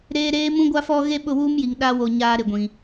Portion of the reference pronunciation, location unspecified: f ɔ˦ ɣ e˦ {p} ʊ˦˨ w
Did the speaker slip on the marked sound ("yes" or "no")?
yes